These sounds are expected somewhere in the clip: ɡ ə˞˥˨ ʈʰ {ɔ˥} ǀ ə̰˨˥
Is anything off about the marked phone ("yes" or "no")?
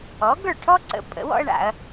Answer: no